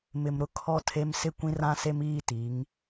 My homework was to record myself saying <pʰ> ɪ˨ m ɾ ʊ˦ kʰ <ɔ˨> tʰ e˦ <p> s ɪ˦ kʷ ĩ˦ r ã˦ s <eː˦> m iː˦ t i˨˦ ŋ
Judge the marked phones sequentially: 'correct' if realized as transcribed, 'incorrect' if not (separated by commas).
incorrect, incorrect, incorrect, incorrect